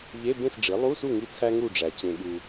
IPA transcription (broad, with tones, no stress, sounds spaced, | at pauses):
ʎ e˧˥˧ b ẽ˥˨ s ɖ͡ʐ i˩˥ lˠ u˧˥˧ s u˥˨ ŋ i˥ t͡sʰ æ˥ ŋ u˥˨ ɖ͡ʐ æ˨ t͡ɕ ẽ˨ ɠ u˨